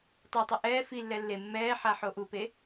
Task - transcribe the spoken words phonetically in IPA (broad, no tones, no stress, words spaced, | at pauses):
tˤutˤɨ ʔɛː filːɛ lːe mːɛː ħaħoʔupe